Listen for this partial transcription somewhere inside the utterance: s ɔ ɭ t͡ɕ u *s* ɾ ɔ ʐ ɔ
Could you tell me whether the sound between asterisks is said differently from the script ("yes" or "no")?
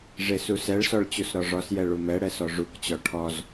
no